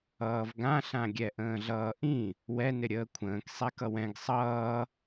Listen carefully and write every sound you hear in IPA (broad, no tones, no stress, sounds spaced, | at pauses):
ʌː v ɡ ã ɬ ã ɡʲ ɛ ʔ ə̃ː ɮ ʌː ʔ ĩ | w ɛ n ɪ ɾʲ əː kʷʰ ə̃ː k sˤ ɛ k ʌ w ɛ̃ ɡ sˤ ʌː